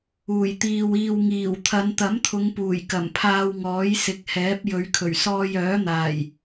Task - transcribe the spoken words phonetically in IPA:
uː˨˩ j t̪ iː˨ w iː˨ w ŋ iː˨˩ w t̪ʰ ɐ˨˧ n t̪ ɐ˨˥ m t̪ʰ ʊ˨˧ ŋ p uː˨˩ j k ɐ˨˩ m pʰ aː˧ w ŋ ɔː˨˥ j s ɪ˨˥ k̚ h ɛː˨˥ p̚ j ɵ˨˧ ɥ kʰ ɵ˨˩ ɥ s ɔː˧ j œː˨˥ n̪ aː˨˩ j

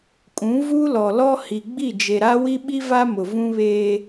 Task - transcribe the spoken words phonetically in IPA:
kʼ ũ˨˦ v u˦ l ɔ˨ l ɔ˦ h i˨ ɡ͡b i˦˨ d͡ʒ e˨ ɾ a˦ w i˦ ɓ i˦ v a˦ m ʊ˨ v ũ˦ β eː˦

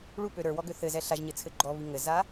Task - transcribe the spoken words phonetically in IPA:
ɭ u p ø ɾ ə˞ w ɔ ɡ ø θ ɘ z ɛ ɬ a ʒ ɲ ɘ t͡sʰ ɘ ɡ͡ǃ ɔ β i ŋ ɘ z a

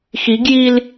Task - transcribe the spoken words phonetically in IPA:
x i ɡ j i l

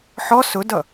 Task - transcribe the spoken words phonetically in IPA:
ħ ɔ s ʊ d ʌ

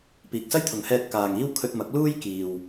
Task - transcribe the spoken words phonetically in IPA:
p iː˨ k̚ s ɐ˥ j t̪ʰ ʊ˨ ŋ h ɛː˧ t̚ k aː˨ ŋ iː˥ w kʰ ɵ˧ t̚ m ɐ˨˥ k̚ l uː˥ j k iː˨ w

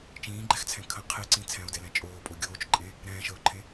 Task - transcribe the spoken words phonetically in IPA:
t͡ʃ ĩː ɡ͡ǃ ɛ x t͡sʰ ɛ̃ kʰ ə̃ qʰ e ǀ ĩ t͡sʰ ɛ̃ o̯ d ɛ l ɛ̃ t͡ʃʼ oː pʼ o ɡʲ oː t͡ʃ ǃʼ ẽ | ɾ ɛ̃ː ʃ əː o̯ ǃʰ ẽ

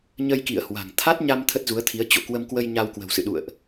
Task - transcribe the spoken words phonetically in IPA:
ɲ ə˧ j k ḭ˧˨ ə̯ h w a̤˨˩ ŋ t̪ʰ a˦˥ t̚ ɲ a˧ m t̪ʰ ə˦˥ t̚ z u˨˦ ə̯ t̪ʰ i˨˦ ə̯ t͡ɕ o̰˧˨ k w ə˧ m k w ə˧ j ɲ a˧ w k w ə̤˨˩ w s ɨ̰˧˨ ɗ ṵ˧˨ ə̯ ʔ

